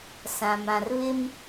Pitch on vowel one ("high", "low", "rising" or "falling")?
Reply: low